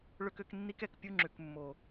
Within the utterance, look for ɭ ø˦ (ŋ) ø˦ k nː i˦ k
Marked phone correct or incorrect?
incorrect